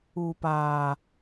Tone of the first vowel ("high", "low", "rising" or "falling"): low